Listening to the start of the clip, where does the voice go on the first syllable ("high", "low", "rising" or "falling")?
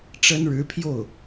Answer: high